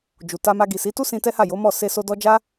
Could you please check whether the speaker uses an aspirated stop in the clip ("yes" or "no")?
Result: no